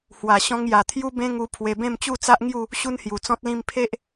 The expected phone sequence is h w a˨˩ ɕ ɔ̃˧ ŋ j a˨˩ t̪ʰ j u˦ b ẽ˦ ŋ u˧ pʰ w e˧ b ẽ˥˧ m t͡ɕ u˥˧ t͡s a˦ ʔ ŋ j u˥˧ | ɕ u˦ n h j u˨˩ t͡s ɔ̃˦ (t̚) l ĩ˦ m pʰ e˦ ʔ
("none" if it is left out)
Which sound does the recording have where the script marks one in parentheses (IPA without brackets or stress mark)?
t̚